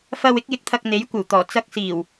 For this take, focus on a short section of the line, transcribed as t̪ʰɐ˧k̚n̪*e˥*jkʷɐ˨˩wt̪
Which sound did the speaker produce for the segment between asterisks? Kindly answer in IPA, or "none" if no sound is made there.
e˨˥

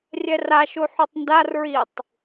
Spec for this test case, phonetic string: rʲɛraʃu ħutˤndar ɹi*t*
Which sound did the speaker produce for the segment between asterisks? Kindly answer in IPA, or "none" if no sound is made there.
tˤ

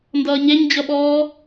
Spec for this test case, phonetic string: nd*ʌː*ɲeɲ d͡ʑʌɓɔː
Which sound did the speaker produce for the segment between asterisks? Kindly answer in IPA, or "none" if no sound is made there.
ʌː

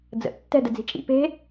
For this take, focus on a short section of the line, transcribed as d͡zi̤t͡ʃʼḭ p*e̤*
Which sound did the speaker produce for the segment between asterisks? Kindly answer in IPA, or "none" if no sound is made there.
e̤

